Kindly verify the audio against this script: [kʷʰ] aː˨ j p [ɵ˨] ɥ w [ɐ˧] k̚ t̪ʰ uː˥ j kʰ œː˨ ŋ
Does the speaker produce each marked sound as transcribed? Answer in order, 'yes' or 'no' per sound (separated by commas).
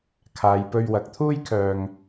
no, no, no